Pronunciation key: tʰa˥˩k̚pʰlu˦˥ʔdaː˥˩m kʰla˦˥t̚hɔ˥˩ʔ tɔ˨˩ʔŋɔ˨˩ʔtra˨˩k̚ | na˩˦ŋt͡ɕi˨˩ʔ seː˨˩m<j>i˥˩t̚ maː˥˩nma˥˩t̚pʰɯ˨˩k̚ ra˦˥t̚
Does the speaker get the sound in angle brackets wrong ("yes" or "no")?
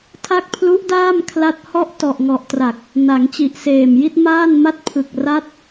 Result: no